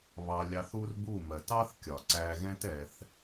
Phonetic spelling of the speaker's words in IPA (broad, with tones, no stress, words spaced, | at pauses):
βɑ˧ lʲɑ˧θ u˦rbu˦˨ mɜ˨t ɑ˦θ kʲɒ˨ǀæ˧ɣɛ̃˦tɛ˧θ